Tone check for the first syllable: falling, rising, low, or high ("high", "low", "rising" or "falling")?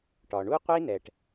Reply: low